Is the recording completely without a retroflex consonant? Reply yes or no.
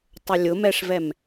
no